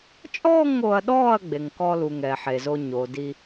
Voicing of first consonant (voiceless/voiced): voiceless